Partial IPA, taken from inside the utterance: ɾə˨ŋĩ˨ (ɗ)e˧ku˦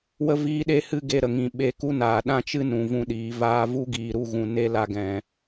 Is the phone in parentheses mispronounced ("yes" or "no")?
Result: yes